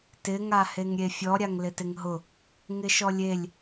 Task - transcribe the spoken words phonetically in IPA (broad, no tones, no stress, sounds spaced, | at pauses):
t ɪ ŋ a h e ŋ ɾʲ e fʲ ɔ ɾʲ a ŋ l ɪ t ɪ ŋ ɦ ʊ | ŋ ɪ ʃ ɔ lʲ e lʲ